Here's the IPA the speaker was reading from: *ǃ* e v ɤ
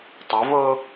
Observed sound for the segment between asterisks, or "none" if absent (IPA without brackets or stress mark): tˤ